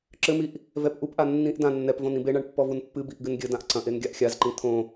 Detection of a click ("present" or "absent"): present